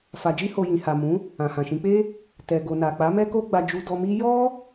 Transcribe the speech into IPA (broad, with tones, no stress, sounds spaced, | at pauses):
f a˨ d͡ʒ i˧ h o˨ j ĩ˨ h a˨ m ũ˨˦ | ã˨ h ã˨ ʃ ĩ˨˦ k͡p e˦ | t ɛ˨ ɡ o˨ n a˨ k͡p a˨˦ m ɛ˦ k o˦ ɡ͡b a˧ d͡ʒ u˧ d ɔ˧ m i˦ j ɔ˦